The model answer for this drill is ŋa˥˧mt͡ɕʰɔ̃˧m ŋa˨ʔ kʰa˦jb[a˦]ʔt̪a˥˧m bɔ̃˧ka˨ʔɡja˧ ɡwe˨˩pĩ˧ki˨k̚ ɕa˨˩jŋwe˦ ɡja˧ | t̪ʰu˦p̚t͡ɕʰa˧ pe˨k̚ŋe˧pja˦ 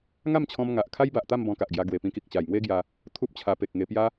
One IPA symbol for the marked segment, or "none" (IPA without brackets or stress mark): a˨